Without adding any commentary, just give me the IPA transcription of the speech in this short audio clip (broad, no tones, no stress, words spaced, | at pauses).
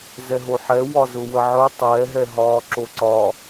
zɛɦoħɛ wɒzʊwəʕœ tˤɛːɦɛɦɒː ǁoǀɒ